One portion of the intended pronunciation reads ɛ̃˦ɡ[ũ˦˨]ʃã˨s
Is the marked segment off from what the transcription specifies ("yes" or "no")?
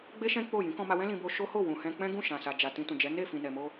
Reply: no